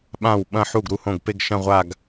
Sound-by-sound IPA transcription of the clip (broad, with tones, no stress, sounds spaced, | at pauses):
ɓ ã˥˩ w ɓ ɐ̃˥˧ ħ u˥˩ ɡ ɾ u˥˩ h õ˥˩ ɡ p e˥˧ ɡ ʃ ɐ̃˥˧ ʁʷ a˥˧ ɡ